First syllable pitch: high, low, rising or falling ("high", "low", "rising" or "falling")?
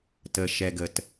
low